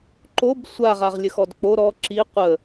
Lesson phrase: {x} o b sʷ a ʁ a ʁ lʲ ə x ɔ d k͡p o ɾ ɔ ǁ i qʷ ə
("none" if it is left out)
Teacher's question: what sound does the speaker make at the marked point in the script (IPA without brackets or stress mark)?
ǃ